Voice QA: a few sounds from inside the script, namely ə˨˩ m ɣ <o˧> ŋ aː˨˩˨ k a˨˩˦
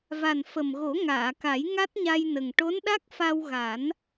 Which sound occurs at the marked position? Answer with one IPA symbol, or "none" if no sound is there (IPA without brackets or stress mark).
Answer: o˨˩˦